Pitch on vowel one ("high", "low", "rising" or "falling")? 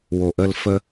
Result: low